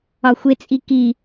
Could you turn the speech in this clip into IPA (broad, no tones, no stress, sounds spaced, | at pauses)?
ɒ xʷ e t͡sʼ i k i